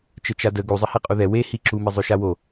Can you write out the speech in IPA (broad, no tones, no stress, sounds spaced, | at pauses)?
t͡ʃ ə t͡ʃ a d ə ɡ u zˤ ə h e qʼ u ð ɛ w e h i ǁ u m i zˤ ø ʃ a w o